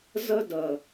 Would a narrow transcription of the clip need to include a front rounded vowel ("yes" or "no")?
no